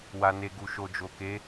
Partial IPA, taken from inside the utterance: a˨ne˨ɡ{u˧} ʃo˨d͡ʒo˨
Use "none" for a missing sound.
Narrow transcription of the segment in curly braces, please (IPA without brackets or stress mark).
u˨